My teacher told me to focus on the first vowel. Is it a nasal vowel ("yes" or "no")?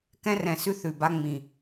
yes